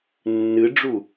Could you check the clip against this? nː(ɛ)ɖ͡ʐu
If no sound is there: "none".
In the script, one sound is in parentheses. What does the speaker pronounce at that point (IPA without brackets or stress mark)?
ɨ